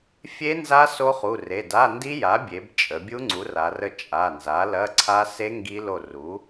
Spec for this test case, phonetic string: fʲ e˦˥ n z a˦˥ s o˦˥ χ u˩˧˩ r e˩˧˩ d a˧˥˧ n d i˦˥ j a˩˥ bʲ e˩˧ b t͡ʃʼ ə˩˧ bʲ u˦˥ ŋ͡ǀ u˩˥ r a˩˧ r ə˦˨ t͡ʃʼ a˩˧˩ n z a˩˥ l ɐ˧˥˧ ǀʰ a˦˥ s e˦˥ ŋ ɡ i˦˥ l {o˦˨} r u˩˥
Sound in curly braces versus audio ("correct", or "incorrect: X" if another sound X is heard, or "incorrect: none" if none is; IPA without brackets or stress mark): correct